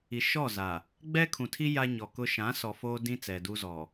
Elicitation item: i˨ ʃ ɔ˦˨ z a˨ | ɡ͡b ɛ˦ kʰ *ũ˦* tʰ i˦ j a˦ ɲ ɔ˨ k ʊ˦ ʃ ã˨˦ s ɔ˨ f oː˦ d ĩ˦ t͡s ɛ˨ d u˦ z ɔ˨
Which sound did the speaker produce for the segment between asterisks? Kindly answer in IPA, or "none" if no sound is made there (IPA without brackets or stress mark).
ũ˨